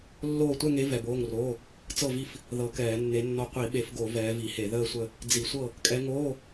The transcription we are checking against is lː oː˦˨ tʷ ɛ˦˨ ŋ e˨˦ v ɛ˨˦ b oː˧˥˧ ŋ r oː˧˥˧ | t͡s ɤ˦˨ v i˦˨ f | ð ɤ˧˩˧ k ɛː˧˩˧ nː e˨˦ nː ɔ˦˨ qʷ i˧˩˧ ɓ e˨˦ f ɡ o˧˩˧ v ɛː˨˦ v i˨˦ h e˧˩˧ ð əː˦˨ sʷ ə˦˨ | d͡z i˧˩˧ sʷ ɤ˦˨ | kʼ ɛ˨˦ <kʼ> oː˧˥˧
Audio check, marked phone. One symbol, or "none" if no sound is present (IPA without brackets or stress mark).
ŋ